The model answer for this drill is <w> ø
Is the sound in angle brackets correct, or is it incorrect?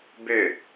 incorrect